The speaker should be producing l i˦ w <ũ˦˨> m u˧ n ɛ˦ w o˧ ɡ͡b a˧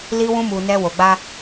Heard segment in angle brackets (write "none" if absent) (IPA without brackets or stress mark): ũ˦